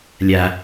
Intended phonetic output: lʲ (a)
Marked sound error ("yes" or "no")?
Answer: no